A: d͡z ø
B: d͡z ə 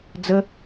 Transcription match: B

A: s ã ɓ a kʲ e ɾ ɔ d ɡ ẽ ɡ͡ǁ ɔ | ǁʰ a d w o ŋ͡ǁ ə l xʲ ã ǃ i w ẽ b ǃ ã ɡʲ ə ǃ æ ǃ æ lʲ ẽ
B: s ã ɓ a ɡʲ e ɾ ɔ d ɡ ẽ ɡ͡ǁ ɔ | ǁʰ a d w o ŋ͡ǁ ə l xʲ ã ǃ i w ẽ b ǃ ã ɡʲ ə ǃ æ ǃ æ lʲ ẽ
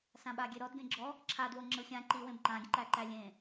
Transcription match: B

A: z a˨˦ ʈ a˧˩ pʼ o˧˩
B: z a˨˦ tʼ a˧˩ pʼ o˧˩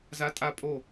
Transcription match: B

